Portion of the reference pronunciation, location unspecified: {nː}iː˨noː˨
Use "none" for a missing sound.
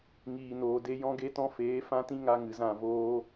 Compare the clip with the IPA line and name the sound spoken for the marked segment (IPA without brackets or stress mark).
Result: ŋ